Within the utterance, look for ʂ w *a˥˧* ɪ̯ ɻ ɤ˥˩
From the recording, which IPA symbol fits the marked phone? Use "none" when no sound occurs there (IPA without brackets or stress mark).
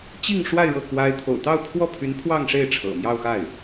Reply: a˥˧